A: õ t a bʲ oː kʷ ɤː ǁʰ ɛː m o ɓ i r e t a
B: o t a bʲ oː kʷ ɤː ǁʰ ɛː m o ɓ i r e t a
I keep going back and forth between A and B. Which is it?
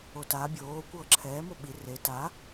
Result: B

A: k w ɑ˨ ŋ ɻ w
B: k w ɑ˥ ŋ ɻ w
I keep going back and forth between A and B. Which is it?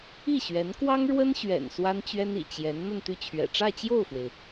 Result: B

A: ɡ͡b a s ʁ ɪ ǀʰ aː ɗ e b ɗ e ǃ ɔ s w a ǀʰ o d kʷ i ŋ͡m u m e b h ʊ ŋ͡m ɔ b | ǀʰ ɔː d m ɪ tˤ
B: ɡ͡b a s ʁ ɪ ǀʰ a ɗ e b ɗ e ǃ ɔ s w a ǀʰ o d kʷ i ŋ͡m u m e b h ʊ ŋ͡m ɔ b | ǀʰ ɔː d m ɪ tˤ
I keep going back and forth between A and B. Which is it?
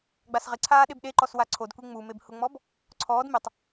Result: A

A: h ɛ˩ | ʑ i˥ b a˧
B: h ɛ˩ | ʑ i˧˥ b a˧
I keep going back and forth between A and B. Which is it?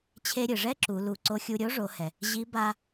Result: B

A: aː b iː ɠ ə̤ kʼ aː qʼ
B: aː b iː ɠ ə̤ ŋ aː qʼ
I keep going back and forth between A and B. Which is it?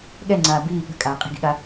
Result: A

